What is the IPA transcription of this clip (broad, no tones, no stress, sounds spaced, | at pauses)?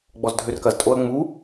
ɡ͡b ɔ z dʱ ø r k ɐ z tʼ o ɐ̯ ŋ͡m u